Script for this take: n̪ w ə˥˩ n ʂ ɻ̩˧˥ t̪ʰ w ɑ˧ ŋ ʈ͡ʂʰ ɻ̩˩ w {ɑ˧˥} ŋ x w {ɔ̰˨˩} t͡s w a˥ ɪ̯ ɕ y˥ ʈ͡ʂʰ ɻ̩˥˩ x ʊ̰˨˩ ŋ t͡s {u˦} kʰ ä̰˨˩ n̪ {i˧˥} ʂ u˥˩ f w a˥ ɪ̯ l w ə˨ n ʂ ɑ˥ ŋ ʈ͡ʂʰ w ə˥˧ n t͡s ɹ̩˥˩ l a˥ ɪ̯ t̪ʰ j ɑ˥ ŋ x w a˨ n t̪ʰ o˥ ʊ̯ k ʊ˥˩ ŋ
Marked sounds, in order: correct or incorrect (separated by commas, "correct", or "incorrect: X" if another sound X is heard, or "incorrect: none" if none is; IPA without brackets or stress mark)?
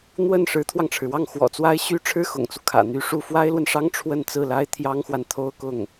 incorrect: ɑ˥˩, correct, correct, incorrect: y˧˥